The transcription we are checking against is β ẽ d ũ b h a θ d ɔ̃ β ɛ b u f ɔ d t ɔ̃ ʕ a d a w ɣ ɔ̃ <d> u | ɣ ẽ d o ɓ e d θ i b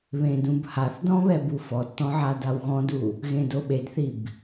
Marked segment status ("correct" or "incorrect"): correct